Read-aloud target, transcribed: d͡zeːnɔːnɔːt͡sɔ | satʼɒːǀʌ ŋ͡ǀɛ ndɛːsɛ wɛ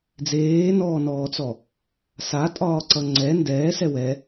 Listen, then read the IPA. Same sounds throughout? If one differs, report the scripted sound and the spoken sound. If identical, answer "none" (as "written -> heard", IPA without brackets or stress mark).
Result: none